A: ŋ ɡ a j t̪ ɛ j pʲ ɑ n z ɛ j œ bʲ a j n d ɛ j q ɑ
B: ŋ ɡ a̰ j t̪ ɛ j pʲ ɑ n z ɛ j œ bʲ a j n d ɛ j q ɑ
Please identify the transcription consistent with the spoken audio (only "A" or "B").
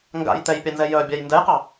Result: B